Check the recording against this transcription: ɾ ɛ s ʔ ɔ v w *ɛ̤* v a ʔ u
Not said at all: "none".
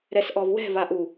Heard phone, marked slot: ɛ̤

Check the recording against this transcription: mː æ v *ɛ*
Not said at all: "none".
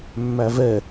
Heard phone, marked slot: ɛ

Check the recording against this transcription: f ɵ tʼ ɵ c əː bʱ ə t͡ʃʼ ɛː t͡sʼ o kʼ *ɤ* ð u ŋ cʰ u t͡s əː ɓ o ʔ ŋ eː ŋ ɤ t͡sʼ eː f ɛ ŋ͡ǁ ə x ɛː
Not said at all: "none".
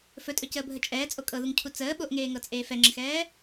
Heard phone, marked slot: ɤ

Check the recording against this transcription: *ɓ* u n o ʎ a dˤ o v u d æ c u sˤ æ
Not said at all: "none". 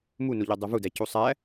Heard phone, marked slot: m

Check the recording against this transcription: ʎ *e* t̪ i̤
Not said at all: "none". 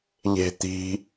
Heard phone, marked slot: e̤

